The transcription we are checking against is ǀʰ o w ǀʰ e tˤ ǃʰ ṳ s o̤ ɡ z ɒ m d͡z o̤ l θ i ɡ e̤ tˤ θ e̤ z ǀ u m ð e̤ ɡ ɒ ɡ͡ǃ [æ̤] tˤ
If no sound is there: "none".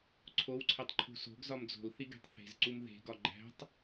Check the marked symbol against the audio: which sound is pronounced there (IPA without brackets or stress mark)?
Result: æ̤